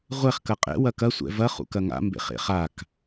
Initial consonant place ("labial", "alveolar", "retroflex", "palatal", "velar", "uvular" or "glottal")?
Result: uvular